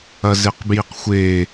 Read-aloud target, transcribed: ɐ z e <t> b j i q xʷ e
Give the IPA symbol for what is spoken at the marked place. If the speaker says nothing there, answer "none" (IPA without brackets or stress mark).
q